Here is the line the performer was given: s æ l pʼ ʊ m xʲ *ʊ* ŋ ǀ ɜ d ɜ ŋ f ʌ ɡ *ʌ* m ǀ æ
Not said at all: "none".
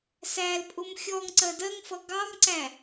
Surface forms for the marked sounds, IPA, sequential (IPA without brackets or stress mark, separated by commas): ɔ, ɑ